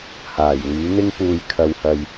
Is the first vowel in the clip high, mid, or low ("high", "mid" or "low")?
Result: low